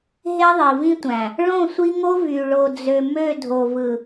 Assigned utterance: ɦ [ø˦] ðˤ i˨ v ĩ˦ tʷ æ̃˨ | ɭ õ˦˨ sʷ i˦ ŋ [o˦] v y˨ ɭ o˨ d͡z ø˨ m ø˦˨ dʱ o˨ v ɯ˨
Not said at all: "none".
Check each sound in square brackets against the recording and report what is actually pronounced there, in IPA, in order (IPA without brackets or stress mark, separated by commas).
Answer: e˦, o˦